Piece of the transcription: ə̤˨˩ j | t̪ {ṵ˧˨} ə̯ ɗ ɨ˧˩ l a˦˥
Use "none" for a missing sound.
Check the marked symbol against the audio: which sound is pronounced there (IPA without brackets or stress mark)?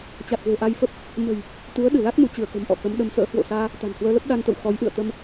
u˨˦